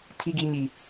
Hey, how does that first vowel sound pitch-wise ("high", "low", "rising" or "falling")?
high